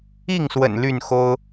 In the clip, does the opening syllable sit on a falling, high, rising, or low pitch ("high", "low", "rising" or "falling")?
falling